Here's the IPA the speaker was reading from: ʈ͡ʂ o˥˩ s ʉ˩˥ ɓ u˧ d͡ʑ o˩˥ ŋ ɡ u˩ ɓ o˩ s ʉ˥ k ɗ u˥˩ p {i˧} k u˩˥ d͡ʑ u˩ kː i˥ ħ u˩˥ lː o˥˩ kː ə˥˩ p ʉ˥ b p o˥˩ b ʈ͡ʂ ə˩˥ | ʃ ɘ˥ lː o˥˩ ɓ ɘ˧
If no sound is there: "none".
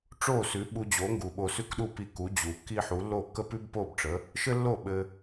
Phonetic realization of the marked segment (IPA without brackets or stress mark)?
i˧